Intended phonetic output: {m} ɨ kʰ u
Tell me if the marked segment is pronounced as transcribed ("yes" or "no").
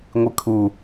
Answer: no